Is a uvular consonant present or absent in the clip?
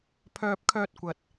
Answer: absent